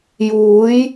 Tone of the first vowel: rising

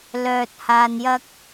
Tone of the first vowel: low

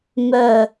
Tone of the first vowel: low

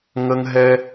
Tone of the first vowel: high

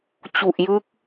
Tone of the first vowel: low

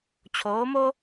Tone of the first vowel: rising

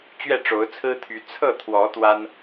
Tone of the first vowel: falling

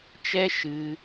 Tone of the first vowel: high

